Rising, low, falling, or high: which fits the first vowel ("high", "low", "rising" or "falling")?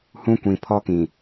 high